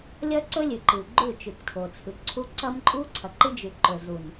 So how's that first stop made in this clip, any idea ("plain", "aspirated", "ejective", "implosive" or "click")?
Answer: click